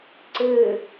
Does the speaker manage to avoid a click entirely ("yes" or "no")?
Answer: no